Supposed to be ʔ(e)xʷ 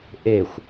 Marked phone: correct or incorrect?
correct